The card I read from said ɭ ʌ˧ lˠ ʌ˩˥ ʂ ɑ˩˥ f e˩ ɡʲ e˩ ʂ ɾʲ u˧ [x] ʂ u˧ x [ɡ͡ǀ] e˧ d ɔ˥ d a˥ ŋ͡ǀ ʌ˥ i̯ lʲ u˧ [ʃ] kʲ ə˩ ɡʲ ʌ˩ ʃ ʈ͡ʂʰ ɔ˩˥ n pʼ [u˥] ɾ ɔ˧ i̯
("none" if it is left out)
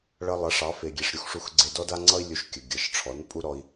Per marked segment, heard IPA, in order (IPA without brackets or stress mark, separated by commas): x, ɡ͡ǀ, ʃ, u˥